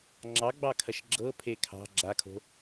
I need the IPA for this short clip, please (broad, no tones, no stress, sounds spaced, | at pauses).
ŋ͡ǁ ɑ ɡ͡b ɑ kʰ ɐ ʃ ɡ͡ǁ ɤ pʰ e kʰ ɑ̤ ɡ͡ǁ a kʰ o̤